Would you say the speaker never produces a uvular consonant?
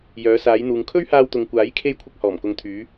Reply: yes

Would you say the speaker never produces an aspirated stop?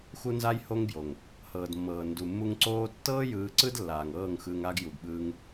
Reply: yes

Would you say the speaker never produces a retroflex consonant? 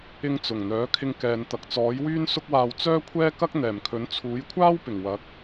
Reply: yes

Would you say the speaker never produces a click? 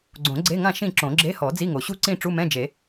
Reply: no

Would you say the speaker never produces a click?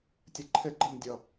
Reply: no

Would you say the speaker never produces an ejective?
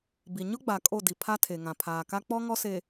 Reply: no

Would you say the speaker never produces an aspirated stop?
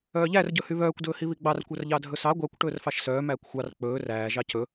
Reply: yes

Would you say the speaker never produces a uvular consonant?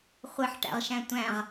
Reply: no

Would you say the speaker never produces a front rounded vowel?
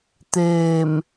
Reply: yes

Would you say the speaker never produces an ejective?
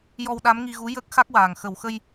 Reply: yes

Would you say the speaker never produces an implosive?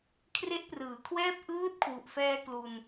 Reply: yes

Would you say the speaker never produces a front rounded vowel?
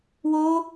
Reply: yes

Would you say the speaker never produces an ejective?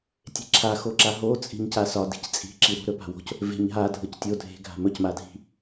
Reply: no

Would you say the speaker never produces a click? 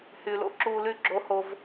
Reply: no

